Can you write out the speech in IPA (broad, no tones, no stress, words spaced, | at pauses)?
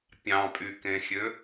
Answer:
pʲɑ̃pʼykẽxʲø